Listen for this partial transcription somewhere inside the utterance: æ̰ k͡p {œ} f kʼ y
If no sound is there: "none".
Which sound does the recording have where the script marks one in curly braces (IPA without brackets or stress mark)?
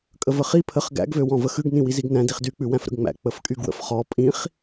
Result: ə